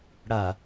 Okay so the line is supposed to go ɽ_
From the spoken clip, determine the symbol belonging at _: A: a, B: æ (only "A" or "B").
A